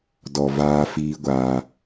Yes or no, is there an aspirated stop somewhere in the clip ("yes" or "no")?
no